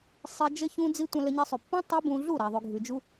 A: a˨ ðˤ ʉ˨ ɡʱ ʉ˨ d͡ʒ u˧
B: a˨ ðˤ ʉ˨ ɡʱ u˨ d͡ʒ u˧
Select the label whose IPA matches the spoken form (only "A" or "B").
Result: A